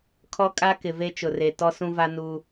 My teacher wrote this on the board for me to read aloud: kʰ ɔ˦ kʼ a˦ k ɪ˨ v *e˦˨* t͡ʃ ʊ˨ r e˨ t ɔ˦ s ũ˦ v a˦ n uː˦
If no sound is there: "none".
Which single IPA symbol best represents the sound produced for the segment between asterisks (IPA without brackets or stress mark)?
e˦